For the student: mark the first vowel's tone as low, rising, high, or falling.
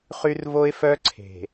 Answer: high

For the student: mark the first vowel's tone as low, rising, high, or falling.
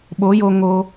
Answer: rising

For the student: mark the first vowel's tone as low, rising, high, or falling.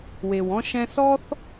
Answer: low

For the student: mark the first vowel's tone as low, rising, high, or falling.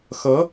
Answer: rising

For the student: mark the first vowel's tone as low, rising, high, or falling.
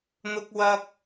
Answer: high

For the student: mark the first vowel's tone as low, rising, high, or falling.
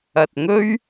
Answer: low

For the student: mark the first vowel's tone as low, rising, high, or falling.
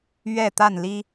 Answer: falling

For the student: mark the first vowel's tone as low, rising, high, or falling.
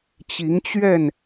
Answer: rising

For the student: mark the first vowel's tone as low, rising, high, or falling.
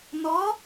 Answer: rising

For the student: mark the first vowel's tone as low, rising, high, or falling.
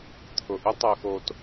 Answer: low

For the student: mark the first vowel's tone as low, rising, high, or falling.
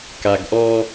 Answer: low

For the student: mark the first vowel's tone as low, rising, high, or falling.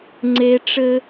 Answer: high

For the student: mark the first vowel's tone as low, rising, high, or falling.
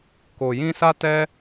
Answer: low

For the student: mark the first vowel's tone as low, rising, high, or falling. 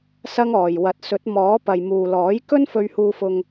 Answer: high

